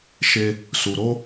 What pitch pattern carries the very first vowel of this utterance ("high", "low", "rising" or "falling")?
high